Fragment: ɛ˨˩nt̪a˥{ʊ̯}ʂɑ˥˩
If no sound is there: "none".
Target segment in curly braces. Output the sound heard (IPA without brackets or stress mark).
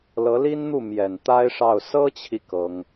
ɪ̯